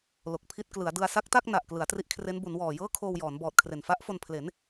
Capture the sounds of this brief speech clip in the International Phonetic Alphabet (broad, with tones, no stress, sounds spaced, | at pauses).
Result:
l o˨˩ k̚ pʰ i˦˥ t̚ k l ɯ˩˦ a̯ d ɯ˧ a̯ s a˦˥ k̚ t a˥˩ k̚ n a˨˩ ʔ k l ɯ˩˦ a̯ t r i˦˥ ʔ kʰ r e˦˥ n b u˩˦ n w ɔː˨˩ j ɤː˥˩ kʰ oː˧ w j ɔː˩˦ n b ɔː˨˩ t̚ kʰ r e˨˩ n f a˦˥ ʔ f o˧ n pʰ l e˩˦ n